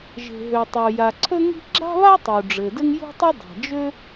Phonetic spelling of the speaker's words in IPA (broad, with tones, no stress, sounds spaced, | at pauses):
ʒ e̤˩ ɦ ø˩ tˤ o˩ j a˩ ǀʰ ɵ˥ ŋ i̤˥ ɡ͡ǁ a̤˥ β a˥ tˤ u˩ ɖ͡ʐ ɘ˩ d ɘ˥ ŋ j ṳ˥ tˤ ʏ˥ dˤ a̤˩ d͡ʒ ø˥